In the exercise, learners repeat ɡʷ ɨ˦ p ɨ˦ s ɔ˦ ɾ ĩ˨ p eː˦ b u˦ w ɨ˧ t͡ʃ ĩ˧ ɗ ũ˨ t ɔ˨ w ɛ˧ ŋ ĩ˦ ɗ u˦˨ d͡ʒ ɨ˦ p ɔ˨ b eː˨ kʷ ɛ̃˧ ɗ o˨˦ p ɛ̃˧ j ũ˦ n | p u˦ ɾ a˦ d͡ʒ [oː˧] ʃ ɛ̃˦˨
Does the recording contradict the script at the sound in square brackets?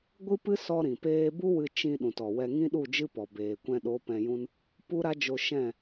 yes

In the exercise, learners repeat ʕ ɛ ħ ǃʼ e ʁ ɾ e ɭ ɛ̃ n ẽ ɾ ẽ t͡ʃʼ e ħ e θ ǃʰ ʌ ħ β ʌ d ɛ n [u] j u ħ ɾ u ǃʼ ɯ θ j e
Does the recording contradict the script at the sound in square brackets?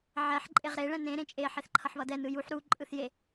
yes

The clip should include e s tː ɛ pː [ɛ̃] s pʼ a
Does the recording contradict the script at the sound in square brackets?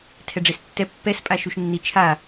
yes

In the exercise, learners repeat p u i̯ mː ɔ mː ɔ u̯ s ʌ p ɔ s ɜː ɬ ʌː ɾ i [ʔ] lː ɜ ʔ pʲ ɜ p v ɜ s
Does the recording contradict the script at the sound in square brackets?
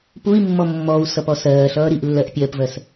no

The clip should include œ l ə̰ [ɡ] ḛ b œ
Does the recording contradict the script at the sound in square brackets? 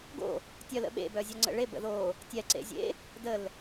yes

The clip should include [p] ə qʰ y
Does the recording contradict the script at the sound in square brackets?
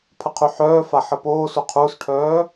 yes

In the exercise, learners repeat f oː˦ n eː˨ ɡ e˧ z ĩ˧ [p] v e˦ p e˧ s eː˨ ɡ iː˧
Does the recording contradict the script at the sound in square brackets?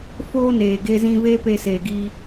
yes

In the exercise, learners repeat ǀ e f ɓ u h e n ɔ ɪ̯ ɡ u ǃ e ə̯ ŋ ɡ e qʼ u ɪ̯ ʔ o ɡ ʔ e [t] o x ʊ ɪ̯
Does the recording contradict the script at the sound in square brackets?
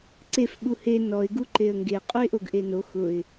yes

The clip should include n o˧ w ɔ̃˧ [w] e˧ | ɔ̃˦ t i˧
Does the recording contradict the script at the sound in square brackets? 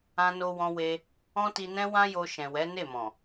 no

